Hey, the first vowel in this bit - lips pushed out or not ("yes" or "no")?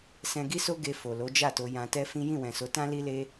no